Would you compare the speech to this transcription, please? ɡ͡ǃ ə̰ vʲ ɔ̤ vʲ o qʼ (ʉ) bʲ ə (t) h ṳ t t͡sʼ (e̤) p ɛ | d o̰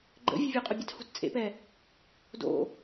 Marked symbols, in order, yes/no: no, yes, no

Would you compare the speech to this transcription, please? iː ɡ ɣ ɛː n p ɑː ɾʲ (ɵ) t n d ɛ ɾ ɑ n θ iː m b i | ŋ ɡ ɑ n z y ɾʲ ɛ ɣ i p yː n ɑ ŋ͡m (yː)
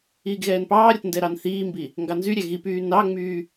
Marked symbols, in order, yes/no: no, yes

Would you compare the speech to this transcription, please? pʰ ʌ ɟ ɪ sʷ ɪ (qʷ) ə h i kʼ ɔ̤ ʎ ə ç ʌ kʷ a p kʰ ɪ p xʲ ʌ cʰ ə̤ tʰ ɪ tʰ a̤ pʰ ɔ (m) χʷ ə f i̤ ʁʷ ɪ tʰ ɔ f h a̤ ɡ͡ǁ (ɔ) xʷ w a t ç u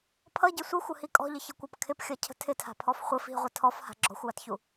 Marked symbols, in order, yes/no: no, no, no

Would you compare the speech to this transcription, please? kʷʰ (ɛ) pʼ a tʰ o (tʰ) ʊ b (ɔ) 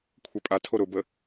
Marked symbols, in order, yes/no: yes, no, no

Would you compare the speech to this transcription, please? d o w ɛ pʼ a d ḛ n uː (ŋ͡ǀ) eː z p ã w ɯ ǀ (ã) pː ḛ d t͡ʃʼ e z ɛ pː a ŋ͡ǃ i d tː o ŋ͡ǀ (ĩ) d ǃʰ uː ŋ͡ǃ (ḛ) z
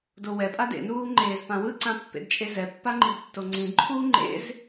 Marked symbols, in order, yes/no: no, yes, yes, yes

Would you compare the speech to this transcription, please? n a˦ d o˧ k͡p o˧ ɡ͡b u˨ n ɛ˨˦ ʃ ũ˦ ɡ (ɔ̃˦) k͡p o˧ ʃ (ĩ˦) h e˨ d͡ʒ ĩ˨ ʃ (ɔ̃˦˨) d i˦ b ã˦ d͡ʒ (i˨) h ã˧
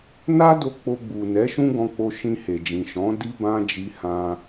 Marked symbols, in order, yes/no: no, no, no, no

